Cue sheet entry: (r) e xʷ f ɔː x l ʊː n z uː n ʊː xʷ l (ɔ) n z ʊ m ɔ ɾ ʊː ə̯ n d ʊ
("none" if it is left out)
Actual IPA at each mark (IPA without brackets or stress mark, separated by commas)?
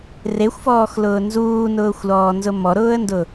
r, ɔː